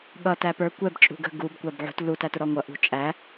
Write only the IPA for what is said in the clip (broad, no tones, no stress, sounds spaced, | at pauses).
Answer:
ɠ ʌ t æ p ə˞ kʷ ɛ b t͡ʃʼ ṳ ɡ ə̤ ɡ u b kʷ æ b ʕ ṳ t l u t æ t ʊ ɾ ɔ ŋʷ ʌ ʔ ṳ t͡ʃʼ æ